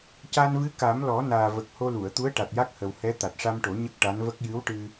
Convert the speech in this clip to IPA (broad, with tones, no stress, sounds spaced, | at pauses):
c a˧ n v ɨ˧˥ k a˨˩˦ m l ɔ˨˩˦ n aː˨˩ v ə˨˩ k̚ h o˧ l u˨˩˨ ə̯ t̪ u˧˥ ə̯ ʈ a˨˩ t̚ j a˦˥ k̚ h ə˨˩ w h ɛ˧˥ t̪ a˨˩ t̚ ʂ a˧ m ʈ o˨˩˦ ɲ ə˦˥ k̚ ʈ a˧˥ n v ə˦˥ k̚ j ɨ˧˥ w ʈ ɨ˧